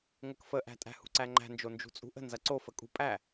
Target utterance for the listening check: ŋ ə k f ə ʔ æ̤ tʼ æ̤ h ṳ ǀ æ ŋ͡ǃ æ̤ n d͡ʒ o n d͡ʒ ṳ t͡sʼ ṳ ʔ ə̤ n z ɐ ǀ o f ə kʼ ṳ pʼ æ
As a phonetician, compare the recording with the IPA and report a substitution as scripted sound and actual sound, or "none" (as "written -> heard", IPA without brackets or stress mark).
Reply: none